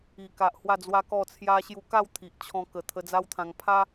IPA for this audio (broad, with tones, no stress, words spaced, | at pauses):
i˨˩ka˨ʔ hwa˥˧d͡zwa˦kɔ˥˧ t͡sʰja˧ɕju˧ka˥˧w t̪ʰi˨ʔt͡ɕʰɔ̃˧kə˨˩ t̪ʰə˧d͡za˦wt̪ʰã˧ŋ pʰa˦